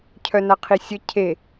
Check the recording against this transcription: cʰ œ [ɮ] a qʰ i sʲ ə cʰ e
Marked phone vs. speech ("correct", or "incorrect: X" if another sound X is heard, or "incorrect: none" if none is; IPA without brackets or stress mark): incorrect: n